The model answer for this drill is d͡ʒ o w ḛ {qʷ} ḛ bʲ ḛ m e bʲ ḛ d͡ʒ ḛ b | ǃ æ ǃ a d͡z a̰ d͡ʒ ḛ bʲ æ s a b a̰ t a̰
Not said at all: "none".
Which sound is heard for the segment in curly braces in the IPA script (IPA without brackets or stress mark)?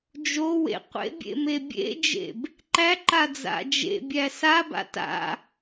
qʷ